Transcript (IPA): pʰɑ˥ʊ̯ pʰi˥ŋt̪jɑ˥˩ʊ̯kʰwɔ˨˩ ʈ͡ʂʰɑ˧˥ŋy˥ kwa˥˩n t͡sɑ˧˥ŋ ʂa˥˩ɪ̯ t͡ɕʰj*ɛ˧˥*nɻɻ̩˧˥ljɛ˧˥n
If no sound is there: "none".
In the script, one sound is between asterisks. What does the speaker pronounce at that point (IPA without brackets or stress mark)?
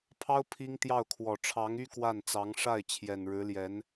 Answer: ɛ˨˩